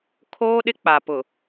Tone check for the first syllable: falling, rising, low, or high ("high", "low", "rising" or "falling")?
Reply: high